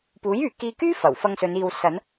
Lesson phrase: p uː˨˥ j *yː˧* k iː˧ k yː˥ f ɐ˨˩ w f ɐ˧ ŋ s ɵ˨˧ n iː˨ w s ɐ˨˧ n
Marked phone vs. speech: incorrect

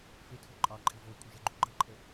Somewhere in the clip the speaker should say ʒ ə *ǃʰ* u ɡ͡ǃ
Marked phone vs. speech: incorrect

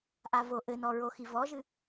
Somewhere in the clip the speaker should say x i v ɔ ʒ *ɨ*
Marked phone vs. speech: correct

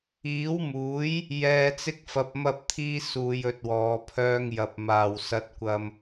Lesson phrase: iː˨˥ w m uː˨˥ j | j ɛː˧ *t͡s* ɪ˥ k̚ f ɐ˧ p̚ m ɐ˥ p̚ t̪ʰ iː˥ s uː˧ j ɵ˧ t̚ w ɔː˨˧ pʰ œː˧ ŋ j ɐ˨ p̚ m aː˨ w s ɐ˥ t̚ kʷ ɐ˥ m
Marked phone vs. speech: correct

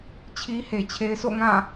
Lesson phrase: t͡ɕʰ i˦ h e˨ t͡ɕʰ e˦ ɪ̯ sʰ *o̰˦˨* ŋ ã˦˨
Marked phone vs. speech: correct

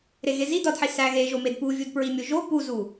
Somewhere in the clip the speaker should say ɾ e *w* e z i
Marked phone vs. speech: incorrect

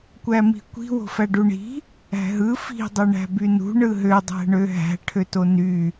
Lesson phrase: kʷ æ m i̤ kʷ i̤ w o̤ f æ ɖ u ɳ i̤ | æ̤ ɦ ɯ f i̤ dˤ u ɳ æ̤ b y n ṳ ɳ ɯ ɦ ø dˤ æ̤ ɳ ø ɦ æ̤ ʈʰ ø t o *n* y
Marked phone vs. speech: correct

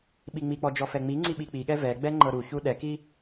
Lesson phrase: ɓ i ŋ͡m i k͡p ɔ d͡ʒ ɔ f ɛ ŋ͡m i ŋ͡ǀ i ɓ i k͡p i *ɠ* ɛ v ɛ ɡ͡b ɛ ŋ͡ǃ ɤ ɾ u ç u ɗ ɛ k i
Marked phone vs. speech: correct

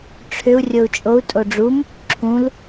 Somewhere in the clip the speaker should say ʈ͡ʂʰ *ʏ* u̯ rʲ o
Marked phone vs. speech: correct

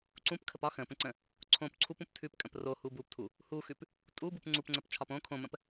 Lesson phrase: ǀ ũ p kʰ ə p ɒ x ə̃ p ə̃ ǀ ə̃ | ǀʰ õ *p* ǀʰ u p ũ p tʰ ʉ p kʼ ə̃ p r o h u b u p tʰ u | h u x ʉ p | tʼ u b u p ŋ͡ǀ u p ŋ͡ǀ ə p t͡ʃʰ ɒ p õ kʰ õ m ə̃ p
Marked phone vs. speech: correct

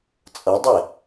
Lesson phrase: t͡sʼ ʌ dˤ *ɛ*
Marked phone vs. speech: correct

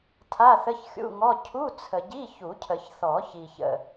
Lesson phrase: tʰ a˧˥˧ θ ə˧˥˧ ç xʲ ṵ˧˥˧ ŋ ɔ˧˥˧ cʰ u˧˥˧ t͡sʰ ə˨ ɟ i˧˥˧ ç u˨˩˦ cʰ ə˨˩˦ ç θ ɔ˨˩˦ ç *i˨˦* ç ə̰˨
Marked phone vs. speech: incorrect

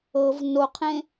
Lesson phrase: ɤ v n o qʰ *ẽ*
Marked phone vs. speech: correct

